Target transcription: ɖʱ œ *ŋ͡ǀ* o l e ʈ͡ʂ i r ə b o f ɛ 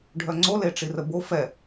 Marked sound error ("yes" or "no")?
no